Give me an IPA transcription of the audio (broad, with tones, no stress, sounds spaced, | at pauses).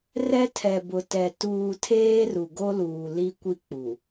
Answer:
r ɛ˦ tʰ ɛ˨ b ʊ˨ t ɛ˨ t uː˨ tʰ eː˦ r u˨ ɡ o˦ l uː˨ l i˦ kʷ i˦ k͡p u˨